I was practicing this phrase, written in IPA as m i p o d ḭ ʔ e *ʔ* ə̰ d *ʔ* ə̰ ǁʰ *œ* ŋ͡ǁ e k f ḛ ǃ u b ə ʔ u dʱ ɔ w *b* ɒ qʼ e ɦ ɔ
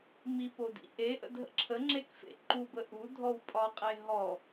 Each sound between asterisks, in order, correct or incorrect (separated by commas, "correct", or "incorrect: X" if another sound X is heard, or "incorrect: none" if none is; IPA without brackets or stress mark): correct, incorrect: ɦ, incorrect: ə, incorrect: pʼ